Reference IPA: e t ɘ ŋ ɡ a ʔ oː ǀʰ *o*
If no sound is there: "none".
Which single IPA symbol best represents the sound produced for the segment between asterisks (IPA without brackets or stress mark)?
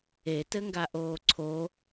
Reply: o